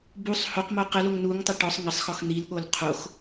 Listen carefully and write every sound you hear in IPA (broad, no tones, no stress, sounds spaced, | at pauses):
b u sˤ h o q m o q ə l o ŋ n u ŋ tˤ ə ʈ ɔ sˤ ŋ ə sˤ x ɔ x n̪ i l ɠ o l qʰ o x